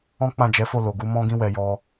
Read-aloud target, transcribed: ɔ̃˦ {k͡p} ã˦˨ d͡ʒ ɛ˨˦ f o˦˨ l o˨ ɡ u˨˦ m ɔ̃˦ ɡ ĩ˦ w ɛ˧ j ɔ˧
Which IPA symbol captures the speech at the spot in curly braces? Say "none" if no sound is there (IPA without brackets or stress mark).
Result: k͡p